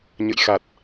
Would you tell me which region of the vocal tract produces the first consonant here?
palate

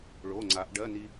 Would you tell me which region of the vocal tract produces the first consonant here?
retroflex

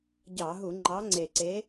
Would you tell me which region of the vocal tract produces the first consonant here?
palate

